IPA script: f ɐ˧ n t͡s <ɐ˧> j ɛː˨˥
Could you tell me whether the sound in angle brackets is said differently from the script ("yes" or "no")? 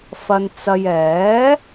no